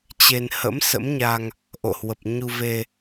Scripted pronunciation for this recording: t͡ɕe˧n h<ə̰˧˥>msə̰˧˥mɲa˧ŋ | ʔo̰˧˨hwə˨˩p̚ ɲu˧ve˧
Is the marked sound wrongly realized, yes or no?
no